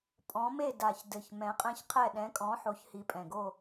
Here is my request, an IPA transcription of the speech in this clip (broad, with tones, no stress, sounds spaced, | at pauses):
pʼ ɔ̃˨˥ m e˥˨ d a˨˩ ç d ɘ˨˩ ç m ɛ̃˨˥ qʼ ɛ̃˥˨ ç qʰ ɛ˥˨ ɗ ɛ̃˨˥ kʼ ɔ̃˨˥ ħ o˨˥ ç h i˨˥ pʼ ɛ̃˨˩ ɡ o˥˨